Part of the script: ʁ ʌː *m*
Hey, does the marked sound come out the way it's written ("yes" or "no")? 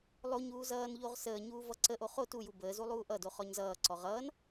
no